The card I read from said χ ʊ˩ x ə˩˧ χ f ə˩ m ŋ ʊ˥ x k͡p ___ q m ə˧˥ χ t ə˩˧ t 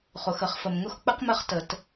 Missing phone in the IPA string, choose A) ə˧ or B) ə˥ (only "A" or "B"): B